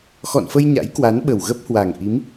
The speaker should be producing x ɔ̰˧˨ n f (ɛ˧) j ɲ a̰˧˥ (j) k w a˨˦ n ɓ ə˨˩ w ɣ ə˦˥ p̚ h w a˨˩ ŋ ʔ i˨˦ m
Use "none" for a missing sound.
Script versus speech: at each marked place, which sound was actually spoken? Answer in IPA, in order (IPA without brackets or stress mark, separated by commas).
ə˧, j